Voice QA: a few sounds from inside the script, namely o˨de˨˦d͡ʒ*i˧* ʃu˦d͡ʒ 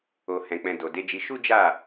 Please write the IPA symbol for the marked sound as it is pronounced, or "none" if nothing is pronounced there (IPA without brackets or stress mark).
i˧